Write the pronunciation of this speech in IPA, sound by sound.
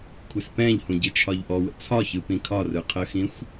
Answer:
kʷʰ ɪ s p ɛ̃ ʎ h ũ ɟ ɪ t͡ʃʰ ɒ ʎ ʔ ɔ w ə̰ t͡sʰ ɒ ç ɯ p ĩ kʰ ɒ r ɯ qʰ ə x ĩ xʷ

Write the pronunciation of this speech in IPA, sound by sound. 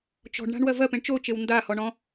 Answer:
t͡ʃ ɔ̤ ɖ ɳ a̤ ɳ w ɜ v ɜ p ẽ ɳ t͡ʃ o t͡ʃ e w n d a h ɔ ɳ ɔ̃

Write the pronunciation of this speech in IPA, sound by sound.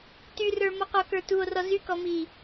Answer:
t y r ə˞ m ɔ q ɔ k ə˞ t u o̯ r ɔ z y k ɔ m i

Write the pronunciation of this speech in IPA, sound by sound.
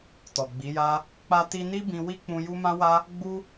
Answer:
t ɔ˨ ɡ͡b i˨˦ j a˦ | k͡p a˧ t i˧ n i˦ b ĩ˧ w i˦ k͡p ũ˧ j u˦ m ã˦ w a˦ | ɡ͡b u˦

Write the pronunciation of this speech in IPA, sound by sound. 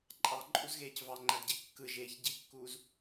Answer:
ǃʼ ɑ ǃʼ u z ɣ eː c v ɑ ŋ͡ǃ æ d ɟ e kː ɯ ʒ eː ç ɟ i kː uː z

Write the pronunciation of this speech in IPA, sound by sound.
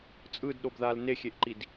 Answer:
t͡sʼ ɯ d ɗ o b ð a l n e xʲ e ʔ ǃ i d

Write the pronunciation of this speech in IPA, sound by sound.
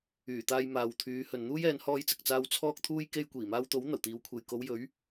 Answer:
yː˨˩ t̪ aː˧ j m aː˨ w t̪ʰ yː˨˧ h ɵ˨ n n̪ uː˥ j ɛː˨˧ n h ɔː˧ j t͡s ɪ˨ k̚ t͡s aː˧ w t͡sʰ ɔː˧ k̚ t̪ʰ uː˧ j k e˧ j kʷ iː˨˩ m aː˧ w t̪ o˨˥ w n̪ ɐ˨˩ w t̪ iː˨˧ w kʷʰ e˨ j k o˨˧ w j ɵ˨˥ ɥ

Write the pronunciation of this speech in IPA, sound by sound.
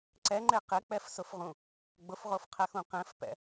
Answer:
ǀ ɛ ŋ͡ǃ e q ɪ k͡p ɛ f s ʊ f ʁ ũ | ɡ͡b ʊ f ʁ o f qʰ ɛ x ũ q ɛ̃ f p ɛ̰

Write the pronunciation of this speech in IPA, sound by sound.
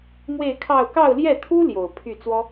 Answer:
m w e˥˧ ɪ̯ kʰ ɑ˥˧ ʊ̯ k ɑ˥˧ ʊ̯ l j ɛ˥˩ t̪ʰ u˥ l j o˨˩ ʊ̯ pʰ y˥˩ t͡s w ɔ˥

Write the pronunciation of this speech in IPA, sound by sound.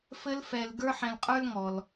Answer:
f ɘ˦ l f ɛ˨ l ɡ ə˞˦ ħ ɛ̃˨ l qʼ ə˞˥ l ŋ ɔ˩ l

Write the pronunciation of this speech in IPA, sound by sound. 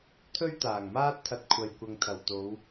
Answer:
t̪ʰ ɵ˥ ɥ t̪ aː˨˩ ŋ m aː˥ t̚ t̪ʰ ɐ˧ t̚ kʷʰ ɐ˨ j kʷ ɐ˨ ŋ t̪ʰ ɐ˨˩ w t̪ o˨˧ w

